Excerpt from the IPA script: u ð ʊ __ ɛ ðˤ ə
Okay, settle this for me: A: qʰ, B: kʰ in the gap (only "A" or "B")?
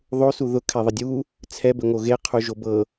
B